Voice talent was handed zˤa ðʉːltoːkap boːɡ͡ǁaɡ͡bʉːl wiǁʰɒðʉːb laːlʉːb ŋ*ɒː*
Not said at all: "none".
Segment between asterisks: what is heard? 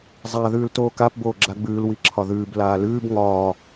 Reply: ɒː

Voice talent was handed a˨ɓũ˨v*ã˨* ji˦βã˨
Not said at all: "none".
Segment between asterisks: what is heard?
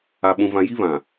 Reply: ã˨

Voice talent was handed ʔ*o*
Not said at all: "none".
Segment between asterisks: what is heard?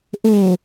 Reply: o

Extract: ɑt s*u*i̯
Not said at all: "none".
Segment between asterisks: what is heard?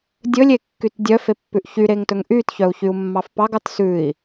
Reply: ʉ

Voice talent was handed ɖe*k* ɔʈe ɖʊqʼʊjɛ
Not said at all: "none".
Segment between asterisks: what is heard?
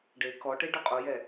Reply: k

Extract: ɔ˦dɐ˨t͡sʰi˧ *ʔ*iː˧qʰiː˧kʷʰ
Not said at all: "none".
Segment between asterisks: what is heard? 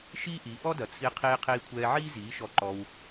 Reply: qʰ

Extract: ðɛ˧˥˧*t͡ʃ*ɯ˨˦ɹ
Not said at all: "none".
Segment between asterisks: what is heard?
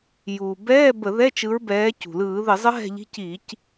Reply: t͡ʃ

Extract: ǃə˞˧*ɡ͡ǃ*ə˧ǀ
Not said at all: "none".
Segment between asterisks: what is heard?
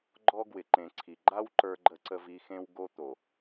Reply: ɡ͡ǃ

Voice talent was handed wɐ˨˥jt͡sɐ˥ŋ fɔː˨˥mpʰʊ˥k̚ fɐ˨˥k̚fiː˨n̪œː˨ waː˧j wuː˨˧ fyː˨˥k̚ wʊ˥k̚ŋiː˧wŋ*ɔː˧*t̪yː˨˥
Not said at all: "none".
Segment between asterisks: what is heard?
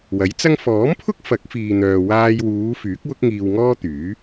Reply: ɔː˥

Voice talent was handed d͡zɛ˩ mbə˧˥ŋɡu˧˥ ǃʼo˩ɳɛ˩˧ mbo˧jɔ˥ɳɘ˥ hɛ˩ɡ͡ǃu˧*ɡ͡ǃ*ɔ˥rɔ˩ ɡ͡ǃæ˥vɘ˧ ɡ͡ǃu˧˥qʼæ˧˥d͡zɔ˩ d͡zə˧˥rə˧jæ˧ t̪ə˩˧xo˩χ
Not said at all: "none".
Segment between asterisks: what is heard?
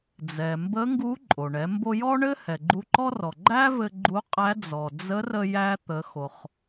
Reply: ǃ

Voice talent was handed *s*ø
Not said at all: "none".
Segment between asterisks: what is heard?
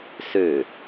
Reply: s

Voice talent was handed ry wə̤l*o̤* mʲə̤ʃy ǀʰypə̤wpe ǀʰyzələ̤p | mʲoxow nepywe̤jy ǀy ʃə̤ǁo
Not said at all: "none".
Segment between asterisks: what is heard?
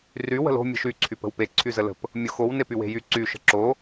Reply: o̤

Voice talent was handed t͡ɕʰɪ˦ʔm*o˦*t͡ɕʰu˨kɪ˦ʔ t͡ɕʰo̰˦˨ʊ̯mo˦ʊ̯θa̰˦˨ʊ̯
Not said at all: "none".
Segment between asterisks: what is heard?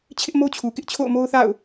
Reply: o˦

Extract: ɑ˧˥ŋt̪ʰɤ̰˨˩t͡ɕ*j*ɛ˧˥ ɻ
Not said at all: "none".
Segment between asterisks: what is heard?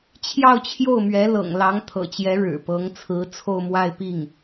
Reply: j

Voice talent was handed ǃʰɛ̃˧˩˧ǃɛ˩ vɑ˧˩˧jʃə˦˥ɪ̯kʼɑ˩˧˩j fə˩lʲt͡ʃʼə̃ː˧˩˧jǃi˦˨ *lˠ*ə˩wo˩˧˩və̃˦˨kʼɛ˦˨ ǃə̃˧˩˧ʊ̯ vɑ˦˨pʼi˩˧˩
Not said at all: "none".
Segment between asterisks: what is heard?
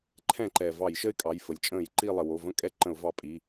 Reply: lˠ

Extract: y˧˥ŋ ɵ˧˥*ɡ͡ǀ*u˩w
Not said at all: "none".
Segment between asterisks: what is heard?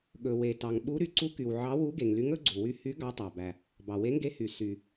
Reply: ɡ͡ǀ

